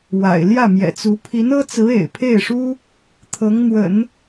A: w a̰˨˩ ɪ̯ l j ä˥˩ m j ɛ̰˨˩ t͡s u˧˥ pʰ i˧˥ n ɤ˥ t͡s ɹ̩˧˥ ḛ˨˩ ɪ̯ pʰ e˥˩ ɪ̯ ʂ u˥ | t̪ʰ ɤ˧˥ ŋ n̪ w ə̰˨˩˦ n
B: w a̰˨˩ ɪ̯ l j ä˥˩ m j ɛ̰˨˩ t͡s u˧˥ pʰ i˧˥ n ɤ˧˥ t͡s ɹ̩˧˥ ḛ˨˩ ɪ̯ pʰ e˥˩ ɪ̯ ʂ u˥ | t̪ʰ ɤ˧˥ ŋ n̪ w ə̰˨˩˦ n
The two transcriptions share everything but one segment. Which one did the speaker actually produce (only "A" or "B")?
A